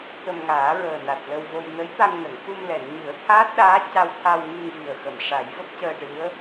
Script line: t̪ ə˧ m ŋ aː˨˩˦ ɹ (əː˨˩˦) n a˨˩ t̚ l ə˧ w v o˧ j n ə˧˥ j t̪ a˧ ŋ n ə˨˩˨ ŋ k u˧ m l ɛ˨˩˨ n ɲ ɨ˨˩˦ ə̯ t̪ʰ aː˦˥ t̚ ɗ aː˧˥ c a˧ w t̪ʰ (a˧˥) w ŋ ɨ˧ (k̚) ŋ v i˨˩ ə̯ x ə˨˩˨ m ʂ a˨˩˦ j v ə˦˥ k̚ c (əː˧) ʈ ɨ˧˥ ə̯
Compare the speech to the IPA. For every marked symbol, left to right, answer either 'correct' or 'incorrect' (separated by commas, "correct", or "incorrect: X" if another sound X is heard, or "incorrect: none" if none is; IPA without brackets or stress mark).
incorrect: əː˨˩, incorrect: a˧, incorrect: none, correct